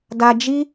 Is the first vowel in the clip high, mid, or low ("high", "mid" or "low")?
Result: low